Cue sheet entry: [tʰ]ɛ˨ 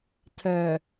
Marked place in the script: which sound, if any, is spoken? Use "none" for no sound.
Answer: tʰ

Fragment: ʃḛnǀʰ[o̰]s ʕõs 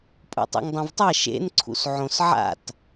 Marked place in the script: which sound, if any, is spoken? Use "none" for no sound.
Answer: ṵ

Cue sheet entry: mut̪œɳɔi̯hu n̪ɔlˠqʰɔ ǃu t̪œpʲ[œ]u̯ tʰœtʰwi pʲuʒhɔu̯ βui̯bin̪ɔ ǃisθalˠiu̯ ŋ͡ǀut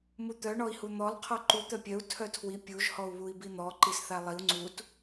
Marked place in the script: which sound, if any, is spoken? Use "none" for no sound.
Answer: œ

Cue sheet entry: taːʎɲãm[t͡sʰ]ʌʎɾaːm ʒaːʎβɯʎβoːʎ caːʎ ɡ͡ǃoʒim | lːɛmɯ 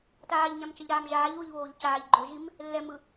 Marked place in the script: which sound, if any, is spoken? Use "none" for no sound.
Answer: t͡ʃ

